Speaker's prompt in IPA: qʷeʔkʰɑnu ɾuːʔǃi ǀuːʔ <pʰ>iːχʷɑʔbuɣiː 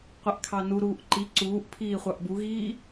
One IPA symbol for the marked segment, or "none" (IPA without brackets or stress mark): pʰ